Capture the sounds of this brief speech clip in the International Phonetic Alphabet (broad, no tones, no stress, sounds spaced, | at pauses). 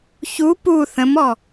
ç u p u θ ə̃ m ɔ